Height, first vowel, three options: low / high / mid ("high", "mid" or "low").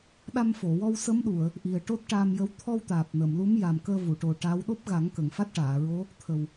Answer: low